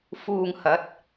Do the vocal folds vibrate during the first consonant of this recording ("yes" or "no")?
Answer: no